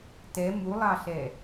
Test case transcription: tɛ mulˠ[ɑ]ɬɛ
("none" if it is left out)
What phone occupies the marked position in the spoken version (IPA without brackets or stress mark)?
ɑ